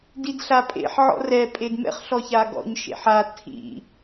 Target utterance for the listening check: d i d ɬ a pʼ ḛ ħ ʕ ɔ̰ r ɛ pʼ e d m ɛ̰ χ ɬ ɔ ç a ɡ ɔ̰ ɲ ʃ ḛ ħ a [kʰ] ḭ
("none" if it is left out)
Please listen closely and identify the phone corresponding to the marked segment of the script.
tʰ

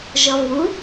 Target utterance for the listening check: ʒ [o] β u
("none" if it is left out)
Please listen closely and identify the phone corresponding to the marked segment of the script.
ɔ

